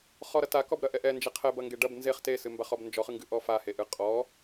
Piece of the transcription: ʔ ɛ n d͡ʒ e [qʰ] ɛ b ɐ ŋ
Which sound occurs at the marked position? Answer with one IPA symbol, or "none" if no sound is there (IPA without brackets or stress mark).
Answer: qʰ